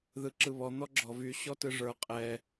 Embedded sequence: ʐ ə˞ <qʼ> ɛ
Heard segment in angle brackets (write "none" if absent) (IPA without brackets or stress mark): qʼ